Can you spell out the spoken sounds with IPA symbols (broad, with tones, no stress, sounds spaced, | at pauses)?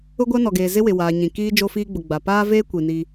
ʊ˦ ɡʷ a˦ n ɔ˨ ɡ eː˨ z ɪ˦ w ɪ˨ w aː˨ ɲ ĩ˨ k iː˦ d͡ʒ o˦ f iː˦ ɡ͡b ʊ˨ ɡ͡b a˨ p aː˦ v eː˦ kʷ i˨ n i˦